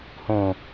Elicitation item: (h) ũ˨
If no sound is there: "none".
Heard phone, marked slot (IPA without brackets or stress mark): h